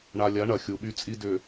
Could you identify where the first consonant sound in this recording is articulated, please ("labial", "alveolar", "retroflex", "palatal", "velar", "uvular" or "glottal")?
retroflex